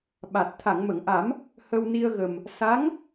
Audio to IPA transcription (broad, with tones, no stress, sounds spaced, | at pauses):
ɓ a˨˩ t̚ t̪ʰ a˨˩˨ ŋ m ə˨˩˨ ŋ ʔ a˨˩˦ m | h ə˧ w n i˧ ə̯ ɣ ə˨˩ m | s a˧˥ ŋ